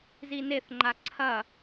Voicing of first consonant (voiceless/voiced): voiced